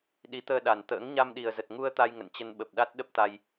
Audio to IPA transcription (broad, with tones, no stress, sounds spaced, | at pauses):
ɗ i˨˦ t̪ əː˧ ɗ a˨˩ n t̪ ə̰ː˧˥ ŋ ɲ a˧ m ɗ i˨˩ ə̯ z ə˨˩ t̚ ŋ u˧ ə̯ t̪ a˧ j ŋ ə̰˧˨ n t͡ɕ ə˧ n ɓ ə˨˩ p̚ ɗ a˦˥ t̚ ɗ ə˦˥ p̚ t̪ a˧ j